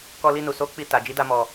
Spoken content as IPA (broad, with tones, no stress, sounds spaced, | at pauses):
k ɔ˧ l i˧ n u˨ s o˨˦ k͡p i˧ t a˨ d͡ʒ i˨˦ d a˧ m ɔ˨